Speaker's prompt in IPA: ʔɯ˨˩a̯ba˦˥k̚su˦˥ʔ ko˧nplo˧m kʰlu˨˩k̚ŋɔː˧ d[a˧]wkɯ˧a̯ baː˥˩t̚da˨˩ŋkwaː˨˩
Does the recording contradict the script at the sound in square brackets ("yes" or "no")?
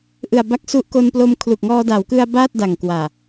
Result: yes